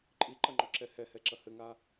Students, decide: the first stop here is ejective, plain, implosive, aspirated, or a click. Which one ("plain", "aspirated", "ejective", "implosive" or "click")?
click